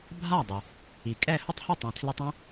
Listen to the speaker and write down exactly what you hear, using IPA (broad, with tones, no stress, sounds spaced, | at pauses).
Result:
bʱ a˥˩ dˤ ɪ˩ | i˩ kʼ ɛ˥˩ h ʊ˥ tˤ h ɪ˥˩ tˤ ɛ̃˩ tʰ l e˧ tˤ õ˥